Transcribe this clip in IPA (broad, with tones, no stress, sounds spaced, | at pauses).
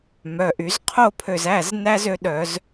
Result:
m œ˩˧˩ ʔ y˧˩˧ z qʰ o˥˨ pʰ ø˧˩ z æ˩˧˩ z n æ˥ z ø˧˥ ɗ œ˧˩˧ z